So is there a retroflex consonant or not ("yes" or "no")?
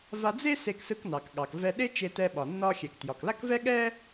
no